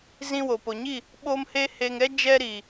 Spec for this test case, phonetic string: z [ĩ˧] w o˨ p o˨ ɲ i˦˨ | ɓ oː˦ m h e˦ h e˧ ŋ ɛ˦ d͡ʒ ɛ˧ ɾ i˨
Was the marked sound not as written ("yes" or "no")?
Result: no